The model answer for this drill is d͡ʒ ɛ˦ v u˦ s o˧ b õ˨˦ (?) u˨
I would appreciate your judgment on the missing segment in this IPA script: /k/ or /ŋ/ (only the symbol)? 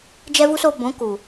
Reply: k